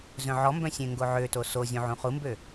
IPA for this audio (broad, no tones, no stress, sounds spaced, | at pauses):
z œ̃ ʕ ɔ m b œ̃ sʲ ẽ ŋ ɡ o ʕ ø t o s o zʲ ũ ʕ ũ χ u m b ø